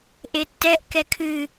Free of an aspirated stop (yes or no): no